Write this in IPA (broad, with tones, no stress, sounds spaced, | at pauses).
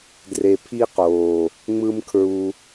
d r e˧ pʰ i˦ q oː˨ | ŋ͡m ɯ˦ m kʰ ɹ u˧